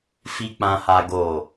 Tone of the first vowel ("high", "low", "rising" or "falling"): low